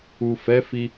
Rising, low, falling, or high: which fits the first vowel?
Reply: low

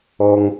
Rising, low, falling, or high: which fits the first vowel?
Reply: high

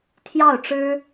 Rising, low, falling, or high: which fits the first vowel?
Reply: falling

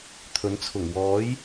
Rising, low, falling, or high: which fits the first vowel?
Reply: rising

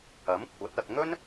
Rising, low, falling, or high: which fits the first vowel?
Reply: rising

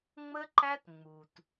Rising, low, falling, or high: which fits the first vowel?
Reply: high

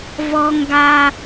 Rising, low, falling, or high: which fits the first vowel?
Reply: high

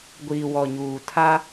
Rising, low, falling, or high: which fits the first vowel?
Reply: low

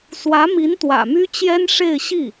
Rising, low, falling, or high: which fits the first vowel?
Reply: rising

